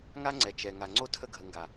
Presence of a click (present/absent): present